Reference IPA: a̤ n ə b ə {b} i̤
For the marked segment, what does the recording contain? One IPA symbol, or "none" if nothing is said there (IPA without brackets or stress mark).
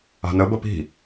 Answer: p